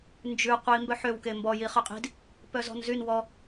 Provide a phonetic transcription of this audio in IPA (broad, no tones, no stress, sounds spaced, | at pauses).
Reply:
n d͡ʒ ʉ qʷ i m b œ ħ ø w k e m b ɔ j i χ ø qʼ i̤ d | p œ z ɔ̤ n z y n w ɔ